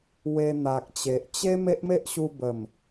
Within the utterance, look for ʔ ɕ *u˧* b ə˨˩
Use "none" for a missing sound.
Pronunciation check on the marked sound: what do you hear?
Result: u˧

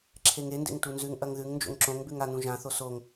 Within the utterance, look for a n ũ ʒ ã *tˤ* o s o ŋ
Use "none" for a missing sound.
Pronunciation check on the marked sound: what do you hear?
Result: θ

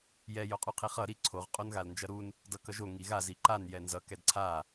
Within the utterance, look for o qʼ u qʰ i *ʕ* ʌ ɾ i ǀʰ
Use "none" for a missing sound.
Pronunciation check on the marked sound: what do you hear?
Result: χ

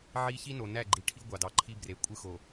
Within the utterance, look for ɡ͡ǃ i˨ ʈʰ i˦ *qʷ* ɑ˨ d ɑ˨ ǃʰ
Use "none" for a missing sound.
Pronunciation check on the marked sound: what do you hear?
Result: ɡʷ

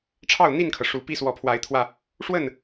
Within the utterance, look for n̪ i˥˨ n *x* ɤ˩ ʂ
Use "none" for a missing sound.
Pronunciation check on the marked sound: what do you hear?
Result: kʰ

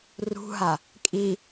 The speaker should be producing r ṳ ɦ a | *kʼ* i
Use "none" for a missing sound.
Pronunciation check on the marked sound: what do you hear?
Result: kʼ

